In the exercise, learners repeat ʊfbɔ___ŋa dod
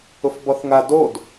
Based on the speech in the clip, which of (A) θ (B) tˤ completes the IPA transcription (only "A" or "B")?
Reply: A